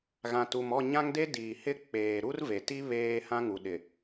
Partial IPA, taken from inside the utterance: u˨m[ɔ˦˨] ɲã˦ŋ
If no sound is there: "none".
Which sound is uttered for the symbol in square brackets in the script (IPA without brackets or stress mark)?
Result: ɔ˦˨